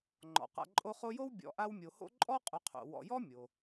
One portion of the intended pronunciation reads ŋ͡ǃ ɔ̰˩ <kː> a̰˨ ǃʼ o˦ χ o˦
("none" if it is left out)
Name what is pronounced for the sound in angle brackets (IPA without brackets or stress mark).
q